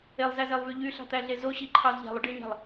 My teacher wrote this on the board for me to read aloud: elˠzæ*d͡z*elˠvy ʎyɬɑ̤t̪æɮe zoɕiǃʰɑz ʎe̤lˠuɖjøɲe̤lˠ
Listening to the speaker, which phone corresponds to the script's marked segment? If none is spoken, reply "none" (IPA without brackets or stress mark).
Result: z